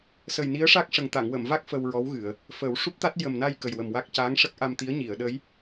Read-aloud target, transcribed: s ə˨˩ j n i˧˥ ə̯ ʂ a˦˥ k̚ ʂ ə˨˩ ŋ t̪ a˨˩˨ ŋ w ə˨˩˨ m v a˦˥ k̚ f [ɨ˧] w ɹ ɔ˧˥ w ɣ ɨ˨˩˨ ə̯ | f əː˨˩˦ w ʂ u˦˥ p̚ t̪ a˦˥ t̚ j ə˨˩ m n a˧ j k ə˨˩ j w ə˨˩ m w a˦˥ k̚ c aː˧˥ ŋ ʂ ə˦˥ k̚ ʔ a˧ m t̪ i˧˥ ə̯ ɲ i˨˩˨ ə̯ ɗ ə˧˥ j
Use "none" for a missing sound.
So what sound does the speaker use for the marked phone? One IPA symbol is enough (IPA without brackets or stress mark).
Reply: ə˧